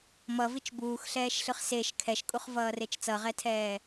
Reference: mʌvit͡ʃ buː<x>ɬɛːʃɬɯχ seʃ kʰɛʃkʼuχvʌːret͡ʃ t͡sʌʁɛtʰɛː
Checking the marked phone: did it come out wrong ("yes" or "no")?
no